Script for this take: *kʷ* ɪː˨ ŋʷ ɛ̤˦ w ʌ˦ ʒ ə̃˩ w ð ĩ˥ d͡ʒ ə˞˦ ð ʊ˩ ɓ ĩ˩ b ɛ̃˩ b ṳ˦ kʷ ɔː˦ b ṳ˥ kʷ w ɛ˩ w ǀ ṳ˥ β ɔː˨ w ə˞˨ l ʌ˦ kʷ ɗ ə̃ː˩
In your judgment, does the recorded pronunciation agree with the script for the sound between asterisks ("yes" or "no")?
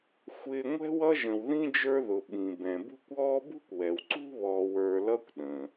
no